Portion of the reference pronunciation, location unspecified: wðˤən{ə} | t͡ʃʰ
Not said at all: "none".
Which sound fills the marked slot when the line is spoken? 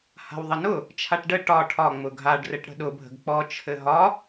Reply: ʊ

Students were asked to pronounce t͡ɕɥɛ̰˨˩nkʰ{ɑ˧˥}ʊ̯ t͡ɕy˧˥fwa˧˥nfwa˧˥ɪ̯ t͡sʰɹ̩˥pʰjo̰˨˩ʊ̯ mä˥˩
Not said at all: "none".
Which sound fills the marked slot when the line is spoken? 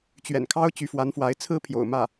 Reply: ɑ˥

